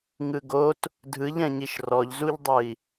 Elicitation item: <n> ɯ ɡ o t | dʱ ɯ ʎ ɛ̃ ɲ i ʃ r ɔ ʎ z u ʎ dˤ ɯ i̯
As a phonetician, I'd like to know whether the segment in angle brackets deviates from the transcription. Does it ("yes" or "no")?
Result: yes